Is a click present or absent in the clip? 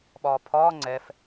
present